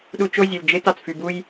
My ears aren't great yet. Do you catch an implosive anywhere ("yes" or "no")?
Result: yes